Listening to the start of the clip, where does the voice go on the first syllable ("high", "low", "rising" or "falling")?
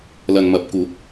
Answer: low